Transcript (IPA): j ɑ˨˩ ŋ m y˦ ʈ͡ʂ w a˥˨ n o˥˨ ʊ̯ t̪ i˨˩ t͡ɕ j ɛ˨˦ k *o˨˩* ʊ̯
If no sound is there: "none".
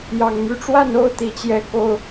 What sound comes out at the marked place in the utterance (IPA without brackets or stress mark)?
o˨˩